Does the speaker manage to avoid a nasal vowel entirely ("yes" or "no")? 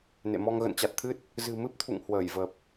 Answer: yes